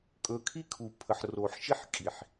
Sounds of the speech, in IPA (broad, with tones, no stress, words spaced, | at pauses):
kʼɵː˨kʰi˦kʰu˨ pʰə˨ħroː˨ħ ʃi˦ħkʼi˨ħ